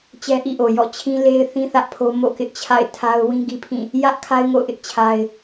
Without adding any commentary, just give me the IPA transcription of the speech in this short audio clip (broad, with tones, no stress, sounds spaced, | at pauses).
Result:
t͡ɕ ɛ˦ ʔ ḭ˦˨ ʔ o˨ j ɔ̰˦˨ t͡ɕʰ ĩ˦ l e˦ ɪ̯ θ ĩ˦ θ ä˦ ʔ pʰ o˦ m o̰˦˨ k ɪ˦ ʔ t͡ɕʰ a̰˦˨ ɪ̯ tʰ a˦ ʊ̯ w ĩ˦ ɡ i˦ pʰ ĩ˦˨ | j ä˦ ʔ kʰ a˦ ɪ̯ ŋ o̰˦˨ ʊ̯ ʔ ɪ˦ ʔ t͡ɕʰ a˦ ɪ̯